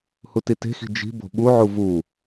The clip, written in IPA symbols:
hutite̤xi̤ d͡ʒi̤ bo̤ɓuʕu vu

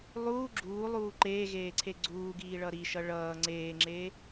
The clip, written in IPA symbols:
lˠuː ɡ͡ǁuːlˠuː ǃeːɣeːǀʰe ɡ͡ǀuːɡiːɭʌ ɾiʃʌ ɭʌː ŋ͡ǀeːŋ͡ǁe

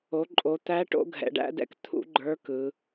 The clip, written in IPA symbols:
o˩˧ǃʼo˩˧t̪æ˧˥ ʈo̰˧˥ɡʱɛ̰˩˧ɖæ̰˧˥dɛ̰˧˥k t̪ʰṵ˧˥ ɡ͡ǃə˞˧˥kɯ˩˧

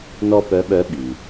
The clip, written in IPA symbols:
nɔ˥pœ˧˥ɓœ˧˥ ɓi˩

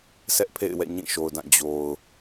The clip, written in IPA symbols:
sɛ˦ʔpʰḛ˦˨ɪ̯wɛ̰˦˨ ɲĩ˦˨ʃo˨ʊ̯dã˦˨ d͡ʑo˨ʊ̯

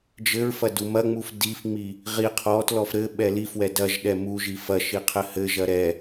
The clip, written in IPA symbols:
d͡ʒɘɹfɐ dumɐŋ͡muf difŋ͡mi | ʁi qʰɔtlɔf ɾɘ ɓɛlifwɛ dɐʒɗɛ mu ʒifɐʃi qʰɘhɘʒɐ ɾɛ

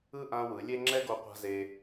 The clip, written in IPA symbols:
ɯ˦ ʔã˧ wɯ˨˦lʲe˦ ŋ͡ǁɛ˦ɡo˧ qʷa̤˦ze˧

